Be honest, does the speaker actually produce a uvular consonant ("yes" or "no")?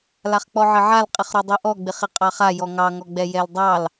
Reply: yes